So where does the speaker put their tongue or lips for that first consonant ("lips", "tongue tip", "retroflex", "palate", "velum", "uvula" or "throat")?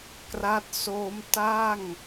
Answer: velum